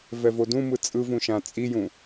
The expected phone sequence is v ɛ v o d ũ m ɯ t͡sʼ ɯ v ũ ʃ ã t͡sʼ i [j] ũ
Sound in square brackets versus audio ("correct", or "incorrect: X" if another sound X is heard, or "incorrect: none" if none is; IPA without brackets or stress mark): correct